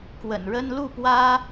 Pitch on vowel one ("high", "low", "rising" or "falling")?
low